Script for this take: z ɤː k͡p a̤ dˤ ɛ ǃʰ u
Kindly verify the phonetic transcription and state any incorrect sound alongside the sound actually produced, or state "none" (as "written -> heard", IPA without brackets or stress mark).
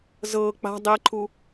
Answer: none